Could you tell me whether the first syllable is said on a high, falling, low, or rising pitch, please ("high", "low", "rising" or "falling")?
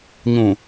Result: low